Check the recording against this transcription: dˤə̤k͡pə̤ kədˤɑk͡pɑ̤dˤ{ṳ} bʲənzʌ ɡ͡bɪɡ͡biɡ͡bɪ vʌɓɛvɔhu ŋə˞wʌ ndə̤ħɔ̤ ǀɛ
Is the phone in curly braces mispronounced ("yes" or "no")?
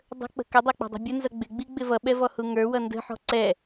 no